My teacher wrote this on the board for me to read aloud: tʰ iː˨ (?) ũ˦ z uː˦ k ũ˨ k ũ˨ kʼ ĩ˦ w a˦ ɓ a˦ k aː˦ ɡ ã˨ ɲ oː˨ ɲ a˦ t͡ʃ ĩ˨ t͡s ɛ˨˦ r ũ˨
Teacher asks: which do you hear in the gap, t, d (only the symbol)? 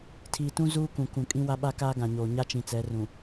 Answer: t